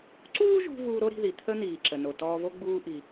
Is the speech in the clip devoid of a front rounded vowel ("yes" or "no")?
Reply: yes